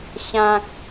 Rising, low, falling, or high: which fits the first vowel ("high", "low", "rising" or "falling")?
high